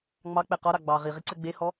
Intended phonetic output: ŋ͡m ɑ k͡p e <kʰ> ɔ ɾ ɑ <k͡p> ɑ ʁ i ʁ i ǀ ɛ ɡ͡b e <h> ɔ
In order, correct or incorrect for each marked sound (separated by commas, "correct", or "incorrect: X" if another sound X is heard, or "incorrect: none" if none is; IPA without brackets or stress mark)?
incorrect: q, incorrect: ɡ͡b, correct